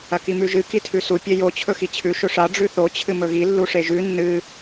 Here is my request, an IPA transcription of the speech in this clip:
ɐ k i m ʉ ʒ ɨ k i tʰ ʉ s u pʲ e j o t͡ɕʰ ɵ x i t͡ɕʰ ʉ ʃ ɵ ʂ a ɖ͡ʐ ʉ θ o t͡ɕʰ ɨ m ɵ ɣ i lː u ʂ e ʒ ʉ nː ɨ

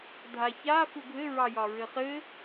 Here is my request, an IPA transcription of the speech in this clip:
dʱ a ç a f u ɡʱ ɘ ɹ ɑ j ɒ ɹ ɘ χ ɘ

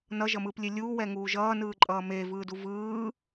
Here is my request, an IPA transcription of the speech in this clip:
n ʌ ʒ ʌ m ɯː p lʲ e lʲ uː w ɛ ŋ uː ʒ ʌː n ɯː ǃʼ ʌː m eː v ɯː d u v ɯː

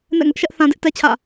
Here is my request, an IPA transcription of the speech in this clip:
n ɛ̰˦˨ ŋ ʊ˦ ʔ ʃ ɛ˦ ʔ θ ã˦ d ɪ˦ ʔ t ɛ˦ t͡ɕʰ ä̰˦˨

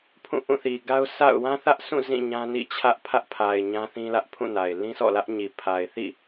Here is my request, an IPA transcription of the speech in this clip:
pʰ ũ˦˨ ʔ ũ˦˨ θ i˨ ɡ a˦ ʊ̯ sʰ a̰˦˨ ʊ̯ w ã˦ θ ä˦ ʔ s ũ˦˨ z ĩ˦˨ ɲ ã˦ n ḭ˦˨ t͡ɕʰ ä˦ ʔ pʰ ä˦ ʔ pʰ a˨ ɪ̯ ɲ ã˦ θ ĩ˦ l ä˦ ʔ pʰ ũ˦˨ n a˨ ɪ̯ l ĩ˦ s ɔ̰˦˨ l ä˦ ʔ ɲ i˨ pʰ a˨ ɪ̯ θ ḭ˦˨

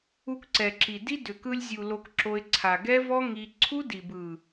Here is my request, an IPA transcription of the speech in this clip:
u˧ k ǀ ɛ˨ ǁ i˨ d i˦ d ʏ˨ k ɯ˧ lʲ zʲ u˨ l o˧ k ǁ o˧ ɪ̯ ǀʰ a˨ ɡ ɛ˦ v ɔ˦ ŋ i˧ ǀʰ u˦ d i˨ b ɯ˨

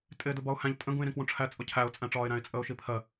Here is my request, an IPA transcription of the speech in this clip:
tʼ ɪː d ʊ b ɒ ʊ̯ h æ̃ ʎ tʼ ə̃ ɡ ũ ɪ̯ ɾ ĩ k w ũ ʈ͡ʂʰ æ t͡sʼ ʊ cʰ æ ʊ̯ t͡sʼ æ̃ ʈ͡ʂ ɒː ɪ̯ ɾ æ̃ ɪ̯ t͡sʼ ə ʊ̯ ʃ i pʰ ɜ

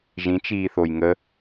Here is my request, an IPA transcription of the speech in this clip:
ʒ ĩ t͡ʃ iː θ o j ŋ ə

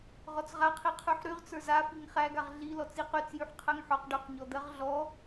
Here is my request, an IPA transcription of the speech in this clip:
ʁ ɔ t͡s ʁ a qʰ i qʰ y ħ ɾ y ʁ t͡s ə˞ z a f i ŋ χ æ ɡ a ʁ ɮ i l ɔ t͡s i q y t͡s j y ħ qʰ ɜ ŋ ħ ɔ q ɖ y q ɲ ɔ d̪ ɜ ʁ ɮ ɔ

